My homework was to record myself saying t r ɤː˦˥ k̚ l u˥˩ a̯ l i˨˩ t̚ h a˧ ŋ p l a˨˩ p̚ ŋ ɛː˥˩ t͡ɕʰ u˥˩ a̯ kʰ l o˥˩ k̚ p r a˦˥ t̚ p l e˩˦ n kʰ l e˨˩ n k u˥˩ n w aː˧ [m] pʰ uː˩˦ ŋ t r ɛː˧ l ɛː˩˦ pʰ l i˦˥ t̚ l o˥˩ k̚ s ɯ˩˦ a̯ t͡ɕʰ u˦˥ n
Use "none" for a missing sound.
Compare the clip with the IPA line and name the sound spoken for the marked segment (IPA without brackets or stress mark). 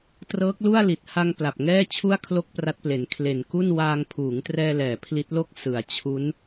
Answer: ŋ